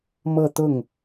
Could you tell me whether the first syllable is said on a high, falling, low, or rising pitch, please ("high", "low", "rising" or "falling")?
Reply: falling